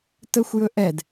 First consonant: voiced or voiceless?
voiceless